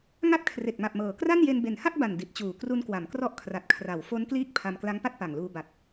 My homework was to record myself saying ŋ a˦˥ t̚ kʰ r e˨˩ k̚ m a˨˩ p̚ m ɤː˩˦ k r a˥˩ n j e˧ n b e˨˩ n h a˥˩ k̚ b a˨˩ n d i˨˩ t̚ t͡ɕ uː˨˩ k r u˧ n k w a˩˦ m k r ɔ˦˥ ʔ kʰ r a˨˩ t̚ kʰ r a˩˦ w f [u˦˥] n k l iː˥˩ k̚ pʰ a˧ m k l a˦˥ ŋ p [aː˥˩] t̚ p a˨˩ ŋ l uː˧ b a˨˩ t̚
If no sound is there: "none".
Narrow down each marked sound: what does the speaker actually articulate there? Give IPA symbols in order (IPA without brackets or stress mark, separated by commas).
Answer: o˦˥, a˥˩